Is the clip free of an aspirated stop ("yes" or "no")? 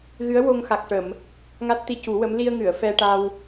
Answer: yes